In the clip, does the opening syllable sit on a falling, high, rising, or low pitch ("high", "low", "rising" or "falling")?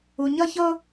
low